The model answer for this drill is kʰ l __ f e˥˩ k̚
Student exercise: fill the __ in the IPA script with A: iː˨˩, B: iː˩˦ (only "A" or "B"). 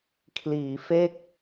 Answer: B